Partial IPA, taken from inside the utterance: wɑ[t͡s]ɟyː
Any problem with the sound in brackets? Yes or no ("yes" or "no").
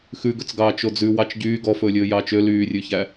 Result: yes